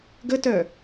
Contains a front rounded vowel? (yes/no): yes